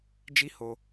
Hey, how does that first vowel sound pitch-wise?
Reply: high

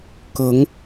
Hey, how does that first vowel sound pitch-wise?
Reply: rising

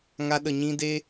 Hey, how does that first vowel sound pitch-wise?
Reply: high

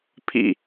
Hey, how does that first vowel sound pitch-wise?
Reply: falling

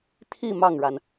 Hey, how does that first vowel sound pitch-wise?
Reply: falling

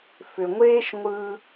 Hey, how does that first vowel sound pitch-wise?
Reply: low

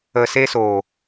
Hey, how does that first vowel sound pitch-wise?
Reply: low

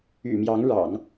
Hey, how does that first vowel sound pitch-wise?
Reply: low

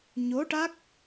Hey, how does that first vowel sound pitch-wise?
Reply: rising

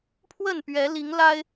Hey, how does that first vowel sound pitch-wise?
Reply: falling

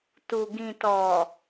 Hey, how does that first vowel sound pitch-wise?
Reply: low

